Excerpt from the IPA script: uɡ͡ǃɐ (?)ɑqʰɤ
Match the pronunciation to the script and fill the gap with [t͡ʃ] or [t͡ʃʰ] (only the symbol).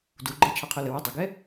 t͡ʃʰ